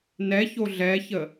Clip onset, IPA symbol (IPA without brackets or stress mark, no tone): n